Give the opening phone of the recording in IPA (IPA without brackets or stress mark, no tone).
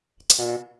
ǀʰ